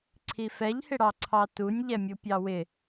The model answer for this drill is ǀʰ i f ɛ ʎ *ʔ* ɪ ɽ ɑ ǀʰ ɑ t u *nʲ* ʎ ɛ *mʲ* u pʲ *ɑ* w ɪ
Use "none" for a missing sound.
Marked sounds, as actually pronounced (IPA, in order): h, nʲ, mʲ, ɑ

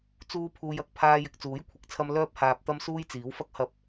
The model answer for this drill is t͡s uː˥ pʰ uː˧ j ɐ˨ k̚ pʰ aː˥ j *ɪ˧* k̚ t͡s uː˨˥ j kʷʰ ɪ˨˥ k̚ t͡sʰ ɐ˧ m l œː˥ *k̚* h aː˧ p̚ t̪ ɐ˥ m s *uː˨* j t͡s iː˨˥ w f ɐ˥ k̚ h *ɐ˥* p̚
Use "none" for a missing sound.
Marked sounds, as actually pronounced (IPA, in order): ɪ˧, p̚, uː˥, ɐ˧

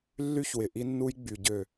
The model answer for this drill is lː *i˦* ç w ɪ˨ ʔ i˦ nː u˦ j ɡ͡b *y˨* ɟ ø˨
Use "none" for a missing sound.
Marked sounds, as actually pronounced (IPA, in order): y˦, y˨

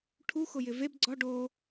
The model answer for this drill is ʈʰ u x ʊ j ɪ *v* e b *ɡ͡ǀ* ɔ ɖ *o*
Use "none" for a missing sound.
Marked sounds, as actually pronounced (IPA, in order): v, ɡ͡ǀ, o

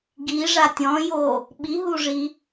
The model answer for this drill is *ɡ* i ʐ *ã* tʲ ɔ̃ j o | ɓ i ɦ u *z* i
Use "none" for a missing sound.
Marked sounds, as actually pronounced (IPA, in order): ɡ, a, ʐ

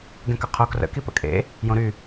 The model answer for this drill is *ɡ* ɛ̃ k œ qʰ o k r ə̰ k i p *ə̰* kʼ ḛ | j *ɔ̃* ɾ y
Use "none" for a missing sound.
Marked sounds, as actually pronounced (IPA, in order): ɡ, ə̰, õ

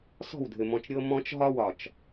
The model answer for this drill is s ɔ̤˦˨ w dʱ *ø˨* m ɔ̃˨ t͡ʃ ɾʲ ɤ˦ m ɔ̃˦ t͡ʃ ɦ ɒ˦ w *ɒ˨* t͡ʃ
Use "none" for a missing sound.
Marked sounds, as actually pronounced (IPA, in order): ɘ˨, ɒ˨

